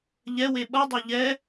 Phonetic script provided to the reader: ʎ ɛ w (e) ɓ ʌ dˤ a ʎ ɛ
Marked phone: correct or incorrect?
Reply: correct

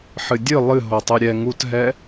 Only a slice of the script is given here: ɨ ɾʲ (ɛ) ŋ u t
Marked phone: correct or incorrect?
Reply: correct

